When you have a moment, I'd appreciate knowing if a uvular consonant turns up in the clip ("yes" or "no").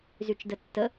no